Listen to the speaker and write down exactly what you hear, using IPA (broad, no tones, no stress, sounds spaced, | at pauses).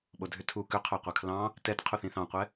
ɓ o dʱ ʏ tʰ u k ʏ qʰ ɵ qʷ ɜ kʰ l ɑ̃ | t ɛ t qʰ u θ ĩ θ ɑ̃ qʷ ɛ